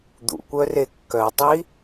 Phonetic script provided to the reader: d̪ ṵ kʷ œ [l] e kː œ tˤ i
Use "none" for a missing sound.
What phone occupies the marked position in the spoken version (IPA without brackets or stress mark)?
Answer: r